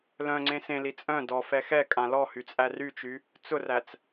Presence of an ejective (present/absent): present